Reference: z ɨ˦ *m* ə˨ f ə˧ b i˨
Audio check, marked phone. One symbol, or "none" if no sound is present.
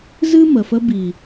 m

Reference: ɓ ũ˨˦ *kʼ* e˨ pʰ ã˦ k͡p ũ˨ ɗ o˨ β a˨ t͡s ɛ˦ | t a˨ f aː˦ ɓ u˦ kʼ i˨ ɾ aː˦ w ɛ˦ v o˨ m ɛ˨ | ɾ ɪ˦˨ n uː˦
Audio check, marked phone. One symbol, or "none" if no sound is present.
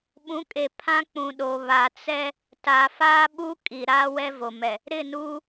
kʼ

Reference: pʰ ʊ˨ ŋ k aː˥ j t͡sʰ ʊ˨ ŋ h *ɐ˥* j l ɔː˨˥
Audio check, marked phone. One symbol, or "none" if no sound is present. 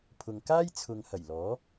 ɐ˨˩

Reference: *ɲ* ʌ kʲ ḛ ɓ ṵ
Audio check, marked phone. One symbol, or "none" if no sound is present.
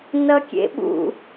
n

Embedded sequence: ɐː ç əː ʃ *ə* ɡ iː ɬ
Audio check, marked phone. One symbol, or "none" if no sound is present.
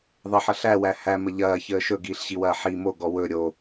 ɵ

